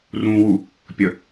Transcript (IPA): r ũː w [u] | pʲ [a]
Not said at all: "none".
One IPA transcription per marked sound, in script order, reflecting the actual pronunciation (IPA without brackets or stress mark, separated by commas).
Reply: u, ə